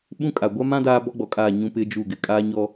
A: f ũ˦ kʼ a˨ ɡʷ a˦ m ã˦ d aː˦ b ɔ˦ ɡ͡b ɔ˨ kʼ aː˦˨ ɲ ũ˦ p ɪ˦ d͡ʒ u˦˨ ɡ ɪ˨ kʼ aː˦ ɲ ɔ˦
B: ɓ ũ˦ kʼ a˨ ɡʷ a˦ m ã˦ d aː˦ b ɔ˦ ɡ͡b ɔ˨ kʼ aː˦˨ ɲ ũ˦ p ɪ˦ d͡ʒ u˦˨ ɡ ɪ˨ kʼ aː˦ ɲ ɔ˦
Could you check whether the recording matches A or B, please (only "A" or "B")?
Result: B